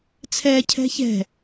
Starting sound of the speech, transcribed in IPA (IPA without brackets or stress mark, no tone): t͡sʰ